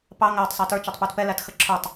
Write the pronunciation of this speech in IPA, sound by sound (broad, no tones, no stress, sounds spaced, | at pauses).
p ɑ ŋ æ tˤ sˤ æ t ə˞ t͡ʃ æ tˤ p u t p ɛ l æ t x ə ǁʰ ə˞ tˤ